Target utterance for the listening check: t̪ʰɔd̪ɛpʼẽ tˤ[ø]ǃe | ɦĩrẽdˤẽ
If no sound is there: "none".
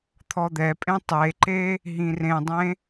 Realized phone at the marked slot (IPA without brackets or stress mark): e